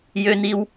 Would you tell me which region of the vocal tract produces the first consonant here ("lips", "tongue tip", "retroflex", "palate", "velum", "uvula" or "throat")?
palate